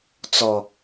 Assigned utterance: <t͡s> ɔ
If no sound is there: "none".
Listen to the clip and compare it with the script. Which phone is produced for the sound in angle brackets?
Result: t͡s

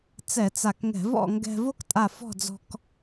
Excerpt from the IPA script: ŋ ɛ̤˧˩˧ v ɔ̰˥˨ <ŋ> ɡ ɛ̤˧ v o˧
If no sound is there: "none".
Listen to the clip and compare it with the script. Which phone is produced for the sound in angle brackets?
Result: ŋ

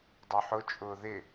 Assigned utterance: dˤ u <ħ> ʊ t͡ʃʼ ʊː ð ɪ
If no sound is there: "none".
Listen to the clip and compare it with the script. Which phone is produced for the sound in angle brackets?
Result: ħ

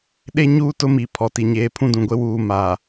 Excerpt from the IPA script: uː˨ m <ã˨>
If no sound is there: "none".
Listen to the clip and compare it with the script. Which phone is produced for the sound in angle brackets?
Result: a˨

